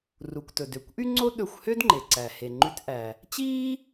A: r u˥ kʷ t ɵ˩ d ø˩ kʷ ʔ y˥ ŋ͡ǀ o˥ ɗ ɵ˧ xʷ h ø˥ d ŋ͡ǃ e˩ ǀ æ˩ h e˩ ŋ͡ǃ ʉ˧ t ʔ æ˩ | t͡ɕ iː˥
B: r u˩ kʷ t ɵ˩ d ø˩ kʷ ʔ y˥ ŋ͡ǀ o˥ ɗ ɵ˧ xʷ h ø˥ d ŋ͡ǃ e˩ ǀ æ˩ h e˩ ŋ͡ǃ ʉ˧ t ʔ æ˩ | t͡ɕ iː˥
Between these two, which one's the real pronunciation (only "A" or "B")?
B